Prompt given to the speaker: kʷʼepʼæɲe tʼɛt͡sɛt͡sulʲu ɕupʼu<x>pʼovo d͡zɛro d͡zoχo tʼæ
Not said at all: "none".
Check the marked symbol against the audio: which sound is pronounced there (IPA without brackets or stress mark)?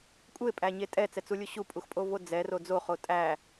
x